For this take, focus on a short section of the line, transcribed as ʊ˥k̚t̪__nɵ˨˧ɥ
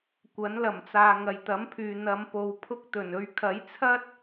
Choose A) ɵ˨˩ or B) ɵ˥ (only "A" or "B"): A